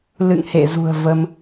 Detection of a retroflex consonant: absent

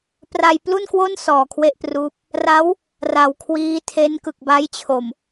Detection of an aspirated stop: present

